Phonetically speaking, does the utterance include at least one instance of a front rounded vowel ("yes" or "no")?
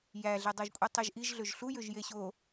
yes